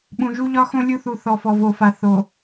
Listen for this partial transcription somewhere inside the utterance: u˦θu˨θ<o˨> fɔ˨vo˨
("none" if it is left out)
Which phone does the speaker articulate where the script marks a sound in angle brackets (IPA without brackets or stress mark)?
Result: ɔ˨